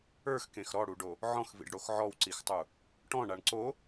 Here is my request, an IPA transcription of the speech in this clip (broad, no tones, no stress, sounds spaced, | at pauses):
ə˞ x k ẽ x ɾ ɔ ɽ u ɖ o | ʕ ɔ̃ x v ḭ ɖ ɽ o x ʕ ɔ w ǀ i x tˤ u | ʈ ɔ̃ ɳ a ɳ ǀ o